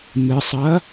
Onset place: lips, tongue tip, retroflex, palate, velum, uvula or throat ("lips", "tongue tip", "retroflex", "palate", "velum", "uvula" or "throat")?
lips